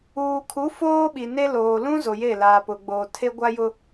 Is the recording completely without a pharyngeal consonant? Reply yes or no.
yes